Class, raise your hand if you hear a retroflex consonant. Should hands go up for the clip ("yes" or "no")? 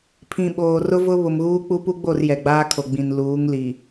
no